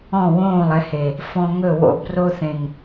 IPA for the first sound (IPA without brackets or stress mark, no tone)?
ɔ̃